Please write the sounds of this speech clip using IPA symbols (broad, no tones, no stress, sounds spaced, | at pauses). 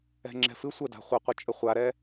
ɛ̤ ŋ͡ǁ ɛ̤ f ɨ sʷ ə d a̤ χʷ ɐ qʷ ɨ t͡ʃʼ ə χʷ a ɾ ɛ